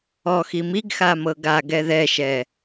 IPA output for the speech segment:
ɔ x i m i ɡ x a m ɤ ɡ a ɡ ɛ ð ɛ ʃ ɛ

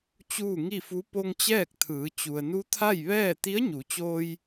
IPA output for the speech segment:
t͡ɕ uː˥˨ ŋ i˥˨ f u˧˥ p o˧ ŋ t͡ɕ ɛː˥˨ k̚ t̪ʰ ɯː˩˧ t͡ɕ u˩ ə̯ n u˧˥ t̪ʰ a˥˨ j ʋ ɛː˥˨ t̪ i˧˥ ə̯ ɲ u˩˧ t͡ɕ oː˧ j

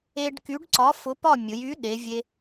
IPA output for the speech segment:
e˧ ɖ k y˨˥ ɖ ǀ ɒ˨˥ f ʊ˨˥ p ɒ˥˨ mʲ ʊ˩˧ j y˨˥ ɗ e˩˧ vʲ e˧

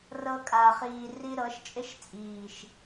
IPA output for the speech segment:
r ɤ˧ kʼ a˨ χ iː˨ r i˧ ɾ ɤ˨˦ ʃ t͡ʃʼ ɪ˦ ʃ t͡sʼ iː˨ ʃ

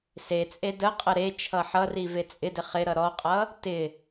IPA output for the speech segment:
s e t͡sʼ e d ə qʼ ə ɾ e t͡ʃʰ ʌ ħ ʌ r i v e t͡sʼ ɪ d ɪ χ ɪ ɾ ʌ ɾ ɔ qʼ ʌ | t ɪ

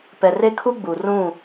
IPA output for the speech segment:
p ɛ˨ r e˦ kʰ u˦ ɡ͡b u˨ r ũ˦˨

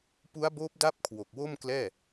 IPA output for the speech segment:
p u˦˥ a̯ b oː˦˥ p̚ d a˦˥ p̚ kʰ w o˨˩ k̚ w o˥˩ m k l ɛː˥˩

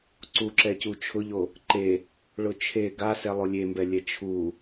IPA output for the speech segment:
ǀ u ǁ ɛ c u t͡ʃʰ ʊ ʎ o | ǃ e | ɭ ʊ t͡ʃʰ e ɡ a s ɛ lˠ o lʲ e m b ɛ lʲ ɛ t͡ʃʰ u

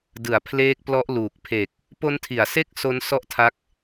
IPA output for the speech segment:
d ɯ˩˦ a̯ pʰ l eː˦˥ k̚ p l ɔ˦˥ ʔ l uː˨˩ k̚ pʰ e˨˩ k̚ | p o˦˥ n tʰ i˩˦ a̯ s e˥˩ k̚ s o˦˥ n s ɔ˥˩ ʔ tʰ a˦˥ k̚

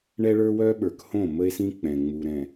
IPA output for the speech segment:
ɳ ɛ˦ ɭ ə˞˦ w œ˦ ɓ ə˞˨ k h õ˦˨ m ə˦ e̯ s ĩ˦ k͡p ɛ̃˨ ŋ͡m u˨ ɾ ɛ̃˨

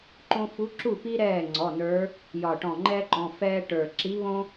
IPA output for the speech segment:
ǃ õ˥ f u˧˥ ǁ u˥˩ p i˥ ɾ ɛː˥˩ ŋ͡ǀ ɔ˩˧˩ n ə˞˧˥ | j ɒ˧˩ ʈ ɔ̃˧˩ ŋ͡ǃ ɛː˥ ǃ ɔ̃˩˧˩ f ɛː˥ ʈ ə˞˧˩ ǁ i˧˥ β õ˥

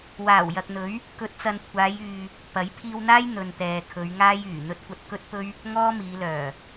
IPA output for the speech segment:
w aː˨˩ w j ɐ˨ k̚ n̪ ɵ˨˥ ɥ | k ɵ˨˥ t̚ t͡s ɐ˨ n kʷʰ aː˨˧ j yː˨ | p ɐ˨˥ j pʰ iː˧ w n̪ aː˥ j n̪ ɵ˨ n t̪ ɛː˨ kʰ ɵ˨˧ ɥ ŋ aː˥ j yː˨˩ n̪ ɵ˥ t̚ kʷ ɐ˧ t̚ k ɵ˥ t̚ p ɵ˥ ɥ | ŋ ɔː˥ m iː˨˧ l œː˨˩

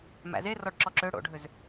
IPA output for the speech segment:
m æ̰ z e r ɔ ɖ ǁ ɔ ǁ ø ɽ o̰ ɖʱ ø z

